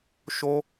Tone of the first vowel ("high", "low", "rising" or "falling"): high